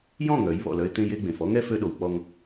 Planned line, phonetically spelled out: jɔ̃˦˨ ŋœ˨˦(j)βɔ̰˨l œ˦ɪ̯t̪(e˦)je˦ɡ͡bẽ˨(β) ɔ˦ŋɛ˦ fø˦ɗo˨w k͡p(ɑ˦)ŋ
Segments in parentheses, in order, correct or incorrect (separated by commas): correct, incorrect, incorrect, incorrect